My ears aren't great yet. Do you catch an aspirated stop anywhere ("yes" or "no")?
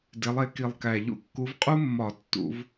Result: no